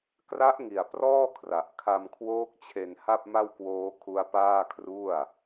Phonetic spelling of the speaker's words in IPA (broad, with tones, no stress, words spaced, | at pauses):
kra˦˥ʔŋi˨˩a̯ prɔː˥˩kʰra˨˩ʔ kʰa˧mkʰwoː˦˥k̚ t͡ɕʰe˧nha˥˩p̚ma˥˩wkwoː˦˥ kʰu˦˥a̯paː˥˩kʰru˥˩a̯